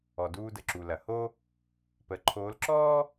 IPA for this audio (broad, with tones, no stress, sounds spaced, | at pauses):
ɔ˩ d uː˧ d ə˩ ǁ u˩ l ɐ˩ h o˥ | p ə˩˧ ǃʰ oː˧˥ l ǁ ɔː˥